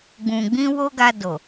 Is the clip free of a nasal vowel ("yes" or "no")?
no